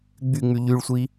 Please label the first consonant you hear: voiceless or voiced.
voiced